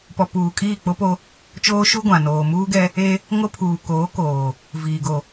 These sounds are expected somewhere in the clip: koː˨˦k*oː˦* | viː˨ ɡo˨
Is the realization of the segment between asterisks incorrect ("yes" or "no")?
yes